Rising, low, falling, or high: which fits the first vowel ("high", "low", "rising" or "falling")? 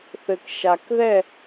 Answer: low